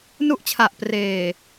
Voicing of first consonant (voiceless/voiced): voiced